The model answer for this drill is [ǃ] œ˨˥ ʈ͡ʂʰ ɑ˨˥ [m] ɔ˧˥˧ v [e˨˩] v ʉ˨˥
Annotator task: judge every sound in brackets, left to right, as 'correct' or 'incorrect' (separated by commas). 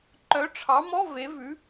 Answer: correct, correct, incorrect